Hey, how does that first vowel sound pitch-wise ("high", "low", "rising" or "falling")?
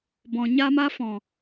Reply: low